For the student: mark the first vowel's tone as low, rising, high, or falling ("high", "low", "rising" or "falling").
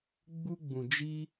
high